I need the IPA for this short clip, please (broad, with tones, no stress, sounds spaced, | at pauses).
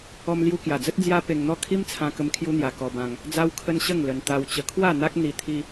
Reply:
ɔ˧ m l j u˧ k j a˨˩ d͡z ə˦ t̚ d͡z j a˦ p e˧ ŋ n̪ ɔ˥˧ kʰ i˦ m t͡sʰ ã˧ k ə˧ m kʰ j u˦ n̪ j a˧ k ɔ˧ b ã˧ ŋ | d͡z a˦ w kʰ ə˦ n ɕ ə˥˧ ŋ l ə˧ n t̪ a˧ w t͡ɕ ə˧ kʰ w a˥˧ n̪ a˦ k̚ n̪ i˧ t̪ʰ i˦